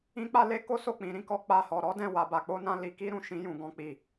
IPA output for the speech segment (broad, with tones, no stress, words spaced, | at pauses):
ĩ˦k͡pa˦le˦ ko˦so˦˨ k͡pĩ˨˦ ɾĩ˦kɔ˦ k͡pa˦˨hɔ˧ ɾɔ˦dɛ̃˦˨wa˧ ba˧k͡po˦nã˦ li˧ki˦ɾũ˧ ʃĩ˦jũ˧ɡɔ̃˦k͡pi˦˨